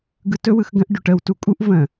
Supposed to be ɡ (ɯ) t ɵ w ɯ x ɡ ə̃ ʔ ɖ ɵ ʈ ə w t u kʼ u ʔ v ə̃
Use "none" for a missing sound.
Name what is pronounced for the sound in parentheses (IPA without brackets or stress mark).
ɯ